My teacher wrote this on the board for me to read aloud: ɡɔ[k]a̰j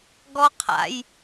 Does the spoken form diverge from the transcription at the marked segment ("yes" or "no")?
yes